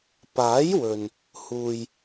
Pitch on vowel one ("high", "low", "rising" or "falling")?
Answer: rising